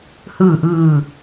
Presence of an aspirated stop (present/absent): absent